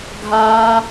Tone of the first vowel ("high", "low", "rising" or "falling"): high